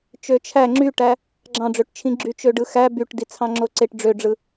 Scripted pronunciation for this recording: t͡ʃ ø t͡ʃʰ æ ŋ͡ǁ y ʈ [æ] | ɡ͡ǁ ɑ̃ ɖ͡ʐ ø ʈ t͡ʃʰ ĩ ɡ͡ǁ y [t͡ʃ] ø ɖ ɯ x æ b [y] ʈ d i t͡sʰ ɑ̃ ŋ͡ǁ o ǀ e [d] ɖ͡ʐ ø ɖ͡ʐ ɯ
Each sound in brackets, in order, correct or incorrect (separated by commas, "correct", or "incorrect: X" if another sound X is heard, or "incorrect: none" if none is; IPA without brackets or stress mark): correct, correct, correct, incorrect: ʈ